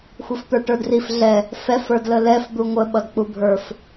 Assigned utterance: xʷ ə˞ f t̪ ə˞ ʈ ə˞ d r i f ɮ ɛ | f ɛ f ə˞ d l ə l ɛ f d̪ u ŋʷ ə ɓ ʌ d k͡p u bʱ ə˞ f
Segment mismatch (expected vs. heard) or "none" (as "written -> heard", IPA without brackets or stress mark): none